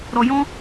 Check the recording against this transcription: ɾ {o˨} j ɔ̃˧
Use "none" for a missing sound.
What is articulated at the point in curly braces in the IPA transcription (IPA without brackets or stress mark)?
ɔ˨